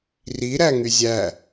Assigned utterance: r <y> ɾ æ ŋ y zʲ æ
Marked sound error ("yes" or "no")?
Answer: yes